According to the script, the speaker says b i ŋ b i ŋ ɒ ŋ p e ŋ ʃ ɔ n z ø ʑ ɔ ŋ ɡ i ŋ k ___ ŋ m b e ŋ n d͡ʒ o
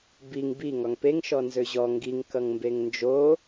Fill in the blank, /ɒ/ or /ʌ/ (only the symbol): ʌ